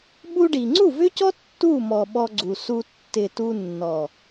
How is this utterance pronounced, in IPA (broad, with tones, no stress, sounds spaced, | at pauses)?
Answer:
ɓ u˧ ɖ i˨ ŋ͡ǀ u˦˨ v ʏ˦ c ɔ˦ tː u˦˨ m ɔ˨ ɓ ɔ˧ ɡ͡ǀ u˨ s u˧ tː ɪ˨ t u˧ nː ɔ˨